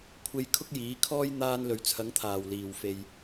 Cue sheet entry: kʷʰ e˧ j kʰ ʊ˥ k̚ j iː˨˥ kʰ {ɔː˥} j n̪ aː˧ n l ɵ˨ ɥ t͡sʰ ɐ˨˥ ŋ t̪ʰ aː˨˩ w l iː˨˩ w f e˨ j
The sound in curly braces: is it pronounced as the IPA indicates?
yes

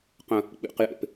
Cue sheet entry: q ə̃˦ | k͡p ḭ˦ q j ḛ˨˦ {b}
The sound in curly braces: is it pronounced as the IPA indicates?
no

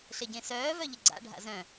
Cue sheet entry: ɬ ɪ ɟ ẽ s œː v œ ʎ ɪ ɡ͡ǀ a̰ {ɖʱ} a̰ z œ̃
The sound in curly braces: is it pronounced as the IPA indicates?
yes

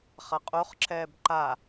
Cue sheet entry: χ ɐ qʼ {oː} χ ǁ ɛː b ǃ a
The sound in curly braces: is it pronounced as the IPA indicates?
no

